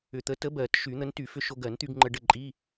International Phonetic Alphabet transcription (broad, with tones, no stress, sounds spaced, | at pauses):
ʏ˨˩ t̪ ə˨˥ t ə˨˥ b ɜ˨˩˦ t ʃ y˨˩˦ n̪ ə˨˥ n t y˨˩˦ f ʏ˧ ʃ o˧ ɡ ɜ˨˩˦ n t̪ y˧ ɡ ŋ͡ǃ ə˧ ɖ ə˥˨ ǃʼ i˧˥˧